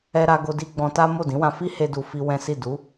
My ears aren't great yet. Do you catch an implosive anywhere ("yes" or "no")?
no